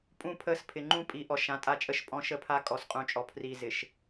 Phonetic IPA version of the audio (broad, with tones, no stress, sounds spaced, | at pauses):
pʼ ũ˦˨ pʰ ə˦˨ s pʰ ɪ˨ ŋ͡ǃ ũ˦ pʼ i˨˦ ʔ ɔ˨ ʃ ã˨ tʼ a˦ t͡ʃʼ ə˦ ʃ pʼ ɔ̃˦ ʃ ə˦ pʰ a˦ kʼ ɔ˨ s qʼ ũ˨ t͡ʃʼ ɔ˨ pʰ r i˨ z ɪ˨ ʃ